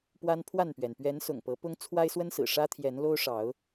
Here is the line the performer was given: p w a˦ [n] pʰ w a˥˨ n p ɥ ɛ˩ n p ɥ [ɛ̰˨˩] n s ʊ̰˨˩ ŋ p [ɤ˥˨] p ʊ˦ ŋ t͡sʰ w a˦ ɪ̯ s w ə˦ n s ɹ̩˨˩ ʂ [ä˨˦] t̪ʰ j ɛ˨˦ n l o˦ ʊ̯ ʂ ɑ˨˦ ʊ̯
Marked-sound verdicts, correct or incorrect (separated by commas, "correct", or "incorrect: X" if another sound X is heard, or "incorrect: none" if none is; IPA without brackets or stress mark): correct, incorrect: ɛ˨˦, incorrect: ɤ˨˦, incorrect: ä˦